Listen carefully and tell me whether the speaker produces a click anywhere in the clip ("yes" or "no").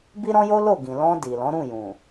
no